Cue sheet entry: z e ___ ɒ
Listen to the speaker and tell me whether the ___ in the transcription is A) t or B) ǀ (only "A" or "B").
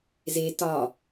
A